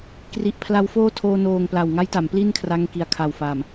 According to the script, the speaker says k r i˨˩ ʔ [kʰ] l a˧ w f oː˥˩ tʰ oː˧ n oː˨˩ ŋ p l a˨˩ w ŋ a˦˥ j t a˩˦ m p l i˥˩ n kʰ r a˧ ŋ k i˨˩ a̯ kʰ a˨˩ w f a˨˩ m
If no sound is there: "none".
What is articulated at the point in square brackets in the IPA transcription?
pʰ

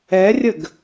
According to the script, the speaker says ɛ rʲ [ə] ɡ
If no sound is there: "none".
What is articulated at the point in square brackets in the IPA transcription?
ə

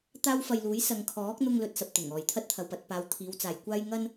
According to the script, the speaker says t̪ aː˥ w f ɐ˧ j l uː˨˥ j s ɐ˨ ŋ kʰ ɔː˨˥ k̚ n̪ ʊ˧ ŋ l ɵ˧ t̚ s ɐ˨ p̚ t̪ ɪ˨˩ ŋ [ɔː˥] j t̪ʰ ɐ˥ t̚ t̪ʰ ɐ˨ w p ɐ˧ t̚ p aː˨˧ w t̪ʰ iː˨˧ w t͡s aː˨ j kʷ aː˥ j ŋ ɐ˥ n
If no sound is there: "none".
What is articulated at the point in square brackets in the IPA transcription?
ɔː˨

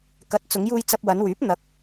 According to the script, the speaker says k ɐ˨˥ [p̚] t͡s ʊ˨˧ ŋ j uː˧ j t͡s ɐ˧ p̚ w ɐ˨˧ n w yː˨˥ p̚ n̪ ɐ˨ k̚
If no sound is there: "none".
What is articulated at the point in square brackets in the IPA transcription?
t̚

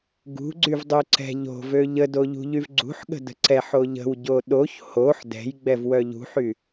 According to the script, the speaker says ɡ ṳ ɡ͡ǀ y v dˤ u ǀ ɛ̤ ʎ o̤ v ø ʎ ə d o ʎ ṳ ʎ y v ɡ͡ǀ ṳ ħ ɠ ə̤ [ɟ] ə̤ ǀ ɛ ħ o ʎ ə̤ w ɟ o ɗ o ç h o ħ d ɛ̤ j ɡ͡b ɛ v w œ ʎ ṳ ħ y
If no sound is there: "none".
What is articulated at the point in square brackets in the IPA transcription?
d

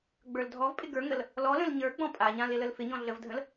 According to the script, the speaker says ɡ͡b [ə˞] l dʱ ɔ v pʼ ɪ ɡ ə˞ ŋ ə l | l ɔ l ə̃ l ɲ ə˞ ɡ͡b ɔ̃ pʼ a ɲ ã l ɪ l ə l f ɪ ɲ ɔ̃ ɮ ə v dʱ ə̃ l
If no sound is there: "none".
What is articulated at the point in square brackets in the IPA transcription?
ə˞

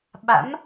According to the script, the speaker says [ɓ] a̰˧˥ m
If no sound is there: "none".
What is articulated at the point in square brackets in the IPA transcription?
ɓ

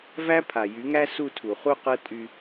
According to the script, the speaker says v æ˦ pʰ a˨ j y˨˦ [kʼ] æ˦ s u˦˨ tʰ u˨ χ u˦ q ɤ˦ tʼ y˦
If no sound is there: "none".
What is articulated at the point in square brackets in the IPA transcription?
ŋ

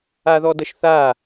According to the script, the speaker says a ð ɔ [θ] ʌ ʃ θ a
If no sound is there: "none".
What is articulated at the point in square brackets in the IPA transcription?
d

